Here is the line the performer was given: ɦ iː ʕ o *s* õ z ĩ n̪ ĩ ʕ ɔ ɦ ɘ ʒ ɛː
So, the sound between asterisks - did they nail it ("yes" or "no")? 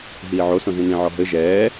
yes